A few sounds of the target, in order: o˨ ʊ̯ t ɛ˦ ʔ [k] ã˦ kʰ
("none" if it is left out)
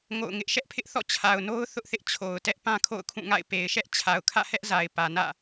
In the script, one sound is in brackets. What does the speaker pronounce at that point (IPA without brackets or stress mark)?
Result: p